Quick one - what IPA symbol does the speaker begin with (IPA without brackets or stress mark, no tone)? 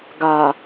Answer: ɡ